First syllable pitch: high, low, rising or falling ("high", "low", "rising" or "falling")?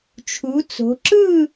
rising